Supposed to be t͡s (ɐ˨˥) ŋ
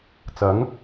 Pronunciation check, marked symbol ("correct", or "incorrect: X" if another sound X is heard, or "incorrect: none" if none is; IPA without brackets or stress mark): correct